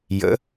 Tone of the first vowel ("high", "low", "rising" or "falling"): rising